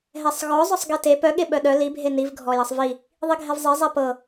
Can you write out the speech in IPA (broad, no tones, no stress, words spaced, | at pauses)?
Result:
ɦɛsˤɣɔ zˤœsˤɡete pœ ɠeɓœɗœ li bʱeniv ɡʱɔjɤsˤvi | ðˤiɡʱɛvzˤe zˤɛpɤ